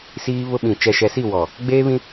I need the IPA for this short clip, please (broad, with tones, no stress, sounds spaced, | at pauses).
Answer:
s iː˦ β ʊ˦ ɓ ĩ˨ t͡ʃ ɛ˨ ʃ ɛ˨ s i˦˨ w ɔ˨ | ɡ͡b eː˦ β ĩ˦